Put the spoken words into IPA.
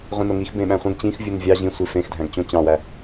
ʁʷ ĩ n o ŋ i x b ẽ ɓ æ̃ χʷ ẽ ɡ t͡ɕ ĩ x vʲ u n vʲ ɑ ʑ ĩ sʷ i f ẽ x dʱ æ̃ ɡ t͡ɕ õ t͡ɕ ɑ̃ w æ

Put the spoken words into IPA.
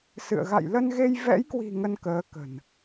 s ɨ̰˧˨ ə̯ ɣ a̰˧˨ j l ə˧ n ɣ e˧ j v ɛ̰˧˥ j k w i̤˨˩ ŋ ə˧ n k əː˨˦ k ə̤˨˩ n

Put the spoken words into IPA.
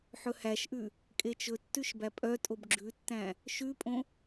ħ ɵ h æ ʃ ʔ ʉ | kʼ e t͡ʃ ɵ tː ʉ ʃ b æ pʼ œ tʼ o b ɡ͡ǁ ʉ tː æ̃ | ʃ ʉ pʼ õ

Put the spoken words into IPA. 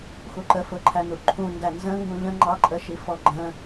x u ǃ ə f ʊ ǃʰ æ n u ǃʰ ũ n d æ n z ə̃ ŋ ɡ ũ ʎ ə̃ ŋ͡ǃ ɑ ǃʼ ə ʃ i f ɔ ɡ͡ǃ ə̃

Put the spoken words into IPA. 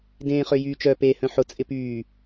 d ẽː χ ø j yː t͡ʃ œ p e h œ̃ ħ ʊ t͡sʼ ɪ p yː

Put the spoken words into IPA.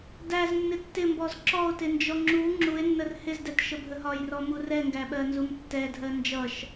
d æ z nː ɪ tː ɪ m b ɔ z ǁ ɔ o̯ t ɪ n d͡ʒ ɔ ŋ͡ǁ u ŋ͡ǁ u e̯ nː ə r h ɪ z d ɛ t ʃ ə bʱ ə ɦ ɒ j r ɔ m u r ɛ ŋ ɡ æ ɓ ɜ n z u m tː ɛ dʱ ɜ n d͡ʒ ʌ ʃ

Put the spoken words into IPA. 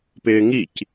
p ɪː ŋ i c

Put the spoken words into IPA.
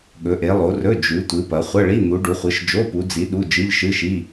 ɠ ɵ˨˦ ʔ e˨˦ lˠ o˨˦ r ɵ˧˥˧ d͡ʒ ʉ˨˦ tʷ ɨ˨˦ p ɐ˨˦ χʷ ɐ˧˥˧ ɭ i˧˥˧ n̪ u˨˦ ɖ u˨˦ χʷ ɨ˨˦ ʃ d͡ʒ o˧˥˧ p u˨˦ d͡z i˨˦ ɗ u˧˥˧ d͡ʒ ɨ˧˥˧ ʎ ʃ ɨ˧˥˧ ʃ i˧˥˧

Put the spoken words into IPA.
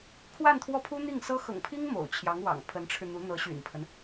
kʰ w a˥˧ n t̪ʰ w ɔ˥˩ pʰ u˥ n̪ i˥˩ ŋ s ɤ˥ x ɤ̰˨˩ ŋ pʰ i˥ ŋ m o̰˨˩ ʊ̯ t͡ɕʰ j ɑ˧˥ ŋ w ɑ̰˨˩ ŋ pʰ ə˧˥ n ʈ͡ʂʰ ɻ̩˧ n̪ u˧˥ n̪ ɤ˧˥ ɕ y̰˨˩ n pʰ ə˦ n

